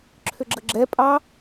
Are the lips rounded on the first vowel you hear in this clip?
yes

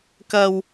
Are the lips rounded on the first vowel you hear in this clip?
no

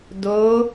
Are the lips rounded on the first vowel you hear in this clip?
yes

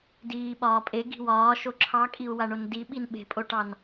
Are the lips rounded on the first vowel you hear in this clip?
no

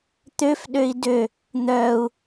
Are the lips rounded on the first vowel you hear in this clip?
yes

